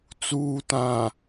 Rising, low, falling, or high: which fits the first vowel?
low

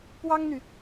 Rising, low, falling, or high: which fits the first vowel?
high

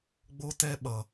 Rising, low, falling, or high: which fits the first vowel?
high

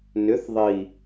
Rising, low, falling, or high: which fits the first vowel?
rising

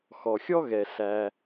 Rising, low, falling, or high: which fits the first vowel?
low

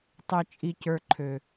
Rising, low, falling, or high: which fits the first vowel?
low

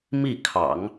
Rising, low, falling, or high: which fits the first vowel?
falling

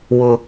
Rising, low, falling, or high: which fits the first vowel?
high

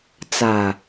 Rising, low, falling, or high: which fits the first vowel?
low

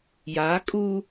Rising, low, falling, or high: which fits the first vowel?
rising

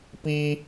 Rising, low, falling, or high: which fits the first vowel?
high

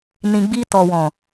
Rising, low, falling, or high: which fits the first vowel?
low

